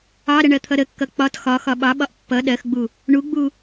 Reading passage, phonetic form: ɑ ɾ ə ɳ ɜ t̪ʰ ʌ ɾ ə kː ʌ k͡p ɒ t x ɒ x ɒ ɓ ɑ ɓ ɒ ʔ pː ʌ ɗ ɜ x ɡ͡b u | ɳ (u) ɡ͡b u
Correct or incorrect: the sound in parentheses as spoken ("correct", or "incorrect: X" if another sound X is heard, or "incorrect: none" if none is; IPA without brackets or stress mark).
correct